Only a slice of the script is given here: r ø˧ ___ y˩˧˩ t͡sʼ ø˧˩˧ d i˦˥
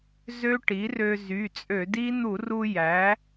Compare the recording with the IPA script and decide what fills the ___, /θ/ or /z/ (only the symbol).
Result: z